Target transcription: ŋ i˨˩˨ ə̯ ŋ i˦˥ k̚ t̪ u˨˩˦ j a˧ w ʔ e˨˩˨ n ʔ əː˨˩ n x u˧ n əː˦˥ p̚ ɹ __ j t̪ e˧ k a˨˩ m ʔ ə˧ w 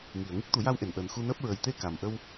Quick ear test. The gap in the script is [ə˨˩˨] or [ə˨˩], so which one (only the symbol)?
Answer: ə˨˩